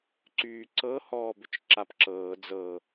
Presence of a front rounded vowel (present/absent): present